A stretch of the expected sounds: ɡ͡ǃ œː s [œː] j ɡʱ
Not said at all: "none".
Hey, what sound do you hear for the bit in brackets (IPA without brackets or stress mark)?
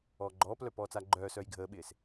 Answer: œː